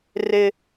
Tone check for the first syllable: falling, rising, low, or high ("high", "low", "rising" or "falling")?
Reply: high